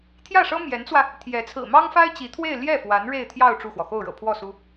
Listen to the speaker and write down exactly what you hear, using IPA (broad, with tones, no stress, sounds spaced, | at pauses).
t̪ʰ j ä˥˩ ʂ ɤ˥ m j ɛ˧˥ n t͡s w ä˧ | t̪ʰ j ɛ˧˥ t͡sʰ ɹ̩˨˩ m ɑ˥ ŋ f a˥ ɪ̯ t͡ɕ i˧˥ t̪ʰ w e˥˧ ɪ̯ l j ɛ˥˩ f w a˧˥ n ɻ e˥˧ ɪ̯ t̪ʰ j ɑ˥˧ ʊ̯ ʈ͡ʂ u˥˩ x w ɔ˩ x o˥˩ ʊ̯ ɻ ɤ̰˨˩ pʰ w ɔ˥˩ s u˥